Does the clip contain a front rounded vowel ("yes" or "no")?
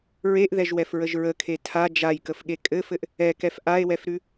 no